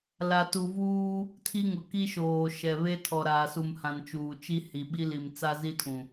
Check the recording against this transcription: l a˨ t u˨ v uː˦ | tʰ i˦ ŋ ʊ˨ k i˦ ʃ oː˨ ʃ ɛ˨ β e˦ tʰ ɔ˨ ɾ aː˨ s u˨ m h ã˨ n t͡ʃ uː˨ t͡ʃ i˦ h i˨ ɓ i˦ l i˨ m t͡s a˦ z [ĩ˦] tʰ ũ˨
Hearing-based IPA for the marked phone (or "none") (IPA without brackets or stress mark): i˦